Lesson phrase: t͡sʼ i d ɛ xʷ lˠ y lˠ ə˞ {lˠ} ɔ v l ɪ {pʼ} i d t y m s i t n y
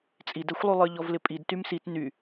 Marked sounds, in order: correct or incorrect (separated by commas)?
incorrect, correct